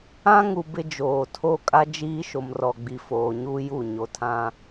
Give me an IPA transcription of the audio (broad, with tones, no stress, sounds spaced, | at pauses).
ã˦ ŋ u˨ b ɪ˦ d͡ʒ oː˨ tʰ o˦ kʼ a˦ d͡ʒ iː˦ ʃ o˨ m r ɔ˨ ɡ͡b i˨ f oː˨ ɲ u˦ j u˦˨ ɲ o˨ tʰ ã˦